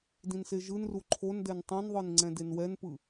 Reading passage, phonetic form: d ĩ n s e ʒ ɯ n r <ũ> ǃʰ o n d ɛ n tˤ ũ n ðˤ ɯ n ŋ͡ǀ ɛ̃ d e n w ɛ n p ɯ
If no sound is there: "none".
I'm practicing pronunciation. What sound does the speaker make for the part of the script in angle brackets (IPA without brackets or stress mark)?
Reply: u